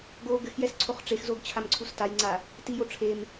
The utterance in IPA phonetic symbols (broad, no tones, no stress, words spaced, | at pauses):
ɡo ɡɘxjɛs ǀʰoχʈ͡ʂexzoɡ t͡ɕʰamǀʰustajŋ͡ǀa | tijo ʈ͡ʂʰem